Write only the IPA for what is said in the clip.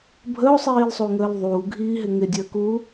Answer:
bʱəo̯sˤiːlsˤuŋəːl ðˤuːɡʱiːɦɪ ŋɪdʲəːkuː

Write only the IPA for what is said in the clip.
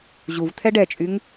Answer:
ʑuvt̪ʰɛ ɖɛt͡ʃʼyŋ

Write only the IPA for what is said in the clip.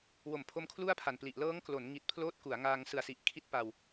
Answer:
wo˩˦m pʰo˦˥mkʰlu˥˩a̯pʰa˨˩npli˨˩ʔ lɤː˦˥ŋklo˩˦n ŋi˨˩t̚pʰloː˦˥t̚ ku˩˦a̯ŋaː˧ŋ sɯ˨˩a̯si˨˩ʔ kʰi˥˩t̚pa˧w

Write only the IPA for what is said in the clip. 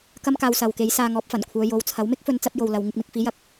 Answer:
kɐ˥mkaː˧wsɐ˨wke˨˥j saː˧ŋɔː˨˥p̚fɐ˨˩nkʷʰœː˨˧ jo˨˥wt͡sʰɐ˨˥w mɪ˥k̚fɵ˨˧nt͡sɐ˧p̚ jo˨wlɐ˨w ŋɪ˧k̚mɪ˧k̚fiː˨˥ jɐ˨˥k̚

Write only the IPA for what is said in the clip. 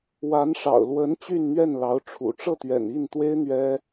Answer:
wa˧˥nʂɑ̰˨˩ʊ̯ lwə˧˥n t͡ɕy˥˧nn̪ɥɛ˥˩nlɑ˧˥ʊ̯ ʈ͡ʂʰṵ˨˩ ʈ͡ʂɤ˥˩t̪ɥɛ̰˨˩ni˥˩nt̪we˥ɪ̯ n̪ɥɛ˥

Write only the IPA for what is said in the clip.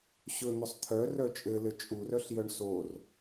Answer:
ɕɵn̪ɵsˤ t̪ʰœrœ t͡ʃʼɘlɘ t͡ʃʼurœɬjœɳ sor

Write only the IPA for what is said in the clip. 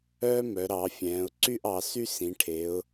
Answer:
œː˥mœ˩˧ɾɑ˩˧fʲɛ̃ː˩˧ʊ̯ ǀy˥˧ʔɑ˩˧ sy˥sĩ˩˧ʈʰe˩˧ʊ̯

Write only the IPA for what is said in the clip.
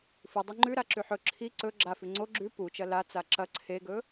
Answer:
fɨdˤɨ ŋ͡ǃʉɾaǁʉħ ɵ ǁʰi ǀɵ ɡ͡ǁafʉ ŋ͡ǀo ɡ͡ǁʉ put͡ʃɐ lat͡sa ǁɐ ǀʰeɡɵ

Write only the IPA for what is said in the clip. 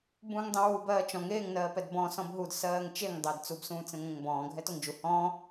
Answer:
bũːŋdˤẽwu bɜːt͡ʃɔ̃ŋ eːŋ nɜːpɛdbɔ̃ sɔ̃bɦud sɜːŋt͡ʃeŋ dˤeːdt͡sub sũːt͡sẽŋʷɛ̃ŋbɔ̃ː ɡʱɛtoŋd͡ʒu hɔ̃ː

